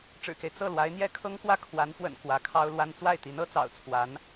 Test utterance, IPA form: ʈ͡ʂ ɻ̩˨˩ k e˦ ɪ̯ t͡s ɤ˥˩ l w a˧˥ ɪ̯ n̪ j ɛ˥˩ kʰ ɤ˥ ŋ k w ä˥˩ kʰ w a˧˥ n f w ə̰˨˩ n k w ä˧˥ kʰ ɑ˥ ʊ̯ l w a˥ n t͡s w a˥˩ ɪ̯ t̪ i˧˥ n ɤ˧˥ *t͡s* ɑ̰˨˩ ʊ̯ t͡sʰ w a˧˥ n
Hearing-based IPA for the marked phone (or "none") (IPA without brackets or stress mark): t͡s